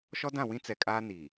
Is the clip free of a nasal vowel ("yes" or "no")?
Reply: no